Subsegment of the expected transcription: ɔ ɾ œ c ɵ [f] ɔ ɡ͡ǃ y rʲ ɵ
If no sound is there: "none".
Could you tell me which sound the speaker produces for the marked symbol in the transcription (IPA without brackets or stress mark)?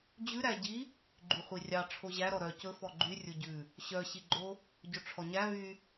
f